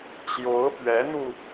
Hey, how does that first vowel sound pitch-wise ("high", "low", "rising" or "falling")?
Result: rising